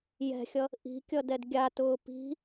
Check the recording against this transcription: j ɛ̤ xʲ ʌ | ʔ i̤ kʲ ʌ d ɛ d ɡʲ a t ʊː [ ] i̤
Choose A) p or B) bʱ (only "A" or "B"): A